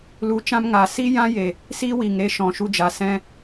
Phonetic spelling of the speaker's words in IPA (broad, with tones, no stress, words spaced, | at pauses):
lu˨˦t͡ʃã˦mŋa˨ si˦jã˦je˨ | siː˦wiː˨ŋɾe˧ ʃɔ̃˨ʃu˧d͡ʒa˨ sɛ̃˧